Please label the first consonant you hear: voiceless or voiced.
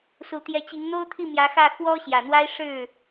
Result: voiceless